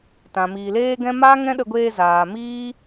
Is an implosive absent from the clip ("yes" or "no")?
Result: no